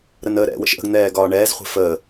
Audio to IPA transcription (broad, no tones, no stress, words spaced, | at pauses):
ɾənəːɾɛ̰ wə̰ʃʔə̤ɡ n̪ɛːɡɒːɳɛːz χʷɛ̤fəː